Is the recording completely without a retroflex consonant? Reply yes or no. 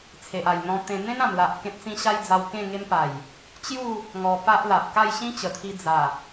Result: yes